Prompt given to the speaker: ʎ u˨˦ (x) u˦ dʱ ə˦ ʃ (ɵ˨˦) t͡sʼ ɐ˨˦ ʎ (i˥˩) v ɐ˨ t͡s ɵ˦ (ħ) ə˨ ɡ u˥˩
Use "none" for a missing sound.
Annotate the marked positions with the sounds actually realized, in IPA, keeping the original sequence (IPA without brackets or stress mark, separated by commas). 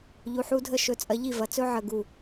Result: ħ, ɵ˨˦, i˥˩, ʕ